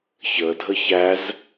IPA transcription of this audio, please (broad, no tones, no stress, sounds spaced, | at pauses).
ç ə dʱ ə ç æ z